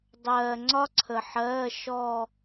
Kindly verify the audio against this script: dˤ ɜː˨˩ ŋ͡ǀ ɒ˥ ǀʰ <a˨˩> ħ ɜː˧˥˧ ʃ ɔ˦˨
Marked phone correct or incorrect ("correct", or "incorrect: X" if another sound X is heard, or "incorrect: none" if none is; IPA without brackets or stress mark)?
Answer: incorrect: ə˨˩